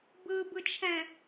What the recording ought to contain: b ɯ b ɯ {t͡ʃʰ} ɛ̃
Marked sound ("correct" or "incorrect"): correct